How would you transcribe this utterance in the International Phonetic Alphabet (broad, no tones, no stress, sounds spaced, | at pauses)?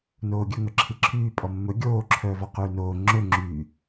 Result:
n oː ɡʲ ɵ ŋ œ ǁʰ i ǁʰ yː pʼ ɔ mː ɵ ɡʲ oː ǁʰ œː v ɔ q yː n oː ŋ͡ǁ ɵ ŋ͡ǁ yː